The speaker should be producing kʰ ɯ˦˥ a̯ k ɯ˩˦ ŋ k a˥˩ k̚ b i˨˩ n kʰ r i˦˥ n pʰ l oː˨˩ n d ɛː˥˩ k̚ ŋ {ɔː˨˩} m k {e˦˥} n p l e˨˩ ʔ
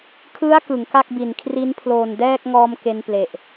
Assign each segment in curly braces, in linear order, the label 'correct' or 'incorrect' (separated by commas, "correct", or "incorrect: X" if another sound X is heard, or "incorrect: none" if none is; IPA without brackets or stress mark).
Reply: incorrect: ɔː˧, incorrect: e˧